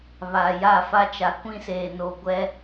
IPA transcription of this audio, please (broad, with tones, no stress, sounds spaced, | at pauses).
β a˨ j a˦˨ f a˦ t͡ʃ a˨˦ kʷ ĩ˦ s eː˨ n o˨ ɡʷ ɛ˦